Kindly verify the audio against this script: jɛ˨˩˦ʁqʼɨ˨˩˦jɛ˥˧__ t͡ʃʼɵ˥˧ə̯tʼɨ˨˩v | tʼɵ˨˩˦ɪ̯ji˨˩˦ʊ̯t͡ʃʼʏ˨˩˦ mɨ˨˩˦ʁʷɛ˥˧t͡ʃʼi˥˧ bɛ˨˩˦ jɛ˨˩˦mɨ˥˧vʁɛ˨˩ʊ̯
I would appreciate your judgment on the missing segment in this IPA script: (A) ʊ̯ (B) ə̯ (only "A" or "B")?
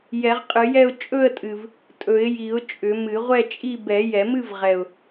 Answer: A